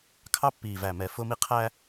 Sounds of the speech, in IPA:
kʰ ɑ˦ pː iː˨ v æ˨ m ɛ˨ f ʊː˦ m i˦ qʰ æ˦

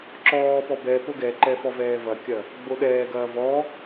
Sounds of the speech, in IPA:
ǁ ɔː p ɔ b ɛ p o ɡ ɛ ǃ ɛ f ɔ v ɛː v ɐ kʲ ɐ | ɡ͡b o ɗ ɛː ɡ ɐː v ɔ

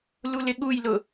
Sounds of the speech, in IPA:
l u l ɪ ɠ u j l ʊ

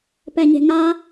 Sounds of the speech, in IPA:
p ɛ ɲ e̤ ŋ a

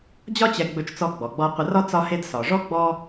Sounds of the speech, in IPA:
d͡ʑ ɒ˥ t͡ɕ ɛ˧ ɡ͡b ɵ˧ t͡ʃ t͡s ɔ˧ ɡ͡b ɔ˩ ɡ͡b ɔ˧ qʷ ə˧ r ɒ˥ t͡s ɒ˧ h e˧ d s ɒ˩ ʐ ɔ˥ ɡ͡b ɔ˥

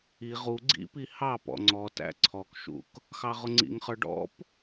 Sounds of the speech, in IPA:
i ʁ u ɡ͡ǀ ḭ p i h ɑ p ɔ̰ ŋ͡ǀ ɔ t æ̰ ǀʰ ɔ k ʃ ṵ k | x ɑ ʁ ʊ ŋ͡ǀ ḭ ŋ χ ə˞ ɖ ɔ̰ p

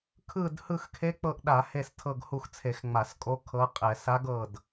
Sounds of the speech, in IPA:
kʰ ɯ˦˨ d h ɯ˦˨ x kʰ e˧˥ k͡p ɤ˦˨ ʔ ɗ a˧˩˧ h e˦˨ s tʰ ɤ˦˨ ɡ h u˦˨ x t͡sʰ e˧˩˧ x ŋ͡m a˧˩˧ s kʼ o˧˥ kʰ ɤ˧˥ qʼ ɛ˧˩˧ s a˧˥ ɡ ɤ˦˨ d

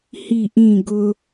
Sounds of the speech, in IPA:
h i ʔ ĩ ɡ ʊ

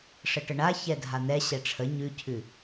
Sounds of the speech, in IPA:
ʂ ə ʈ ə ɳ a ç ɛ dʱ a n̪ ɛ ɕ ɛ ʈ͡ʂʰ ə ɲ ʉ cʰ ʉ

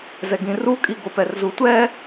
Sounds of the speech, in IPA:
z ɛ ɡ ĩ r u kʼ i ɡ o p ɛ r z u tʷ ɛ

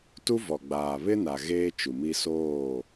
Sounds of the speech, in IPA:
t u˦ v ɔ˨ ɡ͡b aː˨ β ɪ˦ n a˨ ɣ eː˦ t͡ʃ u˨ m i˦ s oː˦˨

